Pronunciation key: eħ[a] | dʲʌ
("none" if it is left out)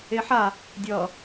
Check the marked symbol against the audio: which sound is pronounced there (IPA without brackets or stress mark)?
a